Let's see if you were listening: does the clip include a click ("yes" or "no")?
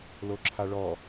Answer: yes